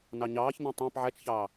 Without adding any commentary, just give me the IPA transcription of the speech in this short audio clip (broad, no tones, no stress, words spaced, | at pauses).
nɑɲɑːçnɛ̃ tˤæ̃p ʕæt͡ʃçɑː